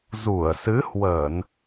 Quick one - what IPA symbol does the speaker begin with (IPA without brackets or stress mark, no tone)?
z